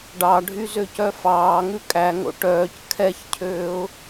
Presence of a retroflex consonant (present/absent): present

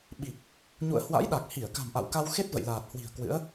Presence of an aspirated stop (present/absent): absent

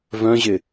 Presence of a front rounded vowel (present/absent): present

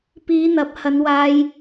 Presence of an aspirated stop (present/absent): absent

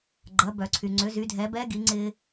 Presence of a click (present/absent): present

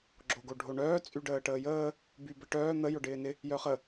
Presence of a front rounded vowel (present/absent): present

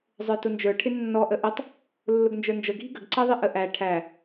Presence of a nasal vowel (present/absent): absent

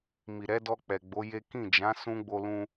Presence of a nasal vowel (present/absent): present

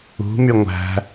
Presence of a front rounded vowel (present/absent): present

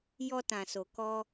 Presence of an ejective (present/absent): absent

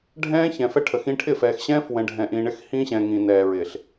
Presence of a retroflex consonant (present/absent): present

